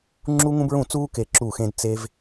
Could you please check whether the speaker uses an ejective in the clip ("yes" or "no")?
no